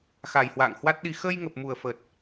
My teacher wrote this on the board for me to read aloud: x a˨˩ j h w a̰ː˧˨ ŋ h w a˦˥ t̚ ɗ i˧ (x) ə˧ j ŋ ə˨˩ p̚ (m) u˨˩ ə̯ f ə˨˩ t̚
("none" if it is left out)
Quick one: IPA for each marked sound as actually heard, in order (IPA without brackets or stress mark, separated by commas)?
x, m